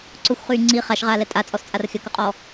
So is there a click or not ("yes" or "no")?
yes